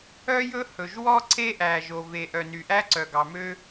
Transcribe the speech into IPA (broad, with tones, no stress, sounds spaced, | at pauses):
œ˥ j ɵ˥ h ɵ˩ ʒ w ɔ˥ ǀ e˥ ʔ æ˩ ʒ o˩ v e˩ ʔ œ˩ n y˩ ʔ æ˥ ǀ œ˩ ɡ ɑ˩ m ø˥